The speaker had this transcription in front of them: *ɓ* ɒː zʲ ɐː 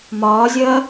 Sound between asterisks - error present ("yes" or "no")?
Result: yes